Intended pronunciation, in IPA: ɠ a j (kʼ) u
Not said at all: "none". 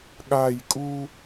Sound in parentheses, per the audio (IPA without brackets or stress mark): kʼ